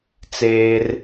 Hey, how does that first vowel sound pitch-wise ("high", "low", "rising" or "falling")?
high